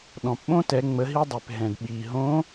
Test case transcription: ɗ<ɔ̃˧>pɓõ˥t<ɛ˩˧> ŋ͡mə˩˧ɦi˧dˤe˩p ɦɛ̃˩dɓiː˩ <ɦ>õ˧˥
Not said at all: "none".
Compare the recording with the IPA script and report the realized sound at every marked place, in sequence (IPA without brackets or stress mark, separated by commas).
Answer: ɔ̃˩, ɛ˩˧, ɦ